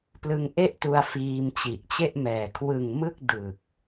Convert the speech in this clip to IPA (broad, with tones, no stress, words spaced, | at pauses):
plɯ˧ŋʔe˥˩ʔtu˧a̯ fiː˧mt͡ɕi˨˩ʔt͡ɕe˥˩ʔmɛː˨˩ kʰwɯ˨˩ŋ mɯ˥˩k̚dɯ˨˩k̚